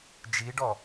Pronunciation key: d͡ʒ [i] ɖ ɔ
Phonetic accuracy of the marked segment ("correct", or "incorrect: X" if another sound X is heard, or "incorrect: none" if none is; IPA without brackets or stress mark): correct